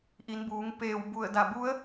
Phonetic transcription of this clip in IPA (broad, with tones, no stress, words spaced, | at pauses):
ʔi˩˧nbuː˩˧ŋ peː˧˩wbu˧˩ə̯ da˧˩bu˧˥ə̯